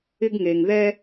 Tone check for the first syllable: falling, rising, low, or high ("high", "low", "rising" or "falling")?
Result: high